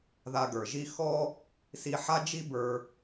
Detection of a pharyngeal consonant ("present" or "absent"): present